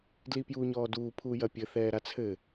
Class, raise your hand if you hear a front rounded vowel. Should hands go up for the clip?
no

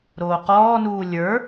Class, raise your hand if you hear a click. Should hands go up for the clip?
no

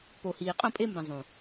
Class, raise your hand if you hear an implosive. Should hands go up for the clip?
no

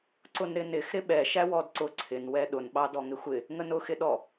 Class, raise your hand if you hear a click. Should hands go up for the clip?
yes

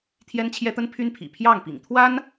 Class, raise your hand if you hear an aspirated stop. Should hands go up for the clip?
yes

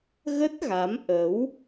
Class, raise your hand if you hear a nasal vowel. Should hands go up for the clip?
no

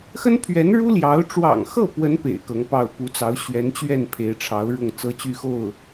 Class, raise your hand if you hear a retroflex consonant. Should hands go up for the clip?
yes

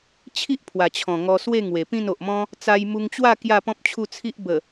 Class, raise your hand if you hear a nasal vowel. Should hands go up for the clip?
yes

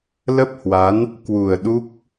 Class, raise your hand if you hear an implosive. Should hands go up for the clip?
yes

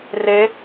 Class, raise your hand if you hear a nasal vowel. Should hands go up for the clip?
no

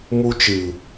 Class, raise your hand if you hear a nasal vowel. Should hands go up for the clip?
no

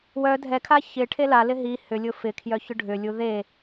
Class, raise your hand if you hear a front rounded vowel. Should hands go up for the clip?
yes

